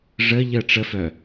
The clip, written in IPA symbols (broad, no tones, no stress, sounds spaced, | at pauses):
ʐ ə ʎ ə ʈ͡ʂ ə f œ